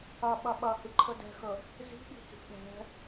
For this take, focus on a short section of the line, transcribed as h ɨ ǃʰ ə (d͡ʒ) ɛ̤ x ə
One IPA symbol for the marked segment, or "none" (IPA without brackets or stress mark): d